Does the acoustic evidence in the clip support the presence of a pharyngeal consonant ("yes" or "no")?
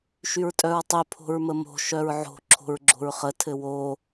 yes